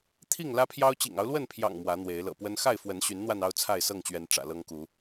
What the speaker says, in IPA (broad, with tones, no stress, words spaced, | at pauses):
t̪ʰi˥˨ŋlä˦pʰjɑ˦ʊ̯ t͡ɕḭ˨˩ŋɑ˦ʊ̯lwə˥˨npʰjɑ̰˨˩ŋ mwä˨˦n̪we˨˦ɪ̯ lɤ̰˨˩pwə˦n xa˥˨ɪ̯fwə˨˦nɕy˨˦nn̪wa˧n ɑ˦ʊ̯t͡sʰa˥˨ɪ̯sɤ˥˨ŋt͡ɕɥɛ˨˦n ʈ͡ʂä̰˨˩lɤ˦ŋku˨˦